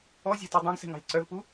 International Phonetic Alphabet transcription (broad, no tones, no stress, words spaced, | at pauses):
ɔzʲɛ̤tu dˤẽɡsɛ̤ŋɑ̤lʲ ǀœvpu